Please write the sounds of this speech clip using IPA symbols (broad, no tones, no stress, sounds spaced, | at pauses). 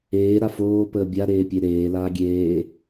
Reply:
eː ɾ a f oː p əː bʲ a ɾ eː pʲ e ɾ eː l aː ɡʲ eː